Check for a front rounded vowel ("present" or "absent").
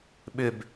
present